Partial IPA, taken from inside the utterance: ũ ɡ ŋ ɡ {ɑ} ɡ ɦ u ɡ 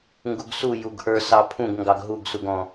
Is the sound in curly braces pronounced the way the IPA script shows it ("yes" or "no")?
yes